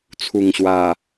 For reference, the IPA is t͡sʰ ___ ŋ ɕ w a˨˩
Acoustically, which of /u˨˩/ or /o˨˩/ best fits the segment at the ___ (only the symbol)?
u˨˩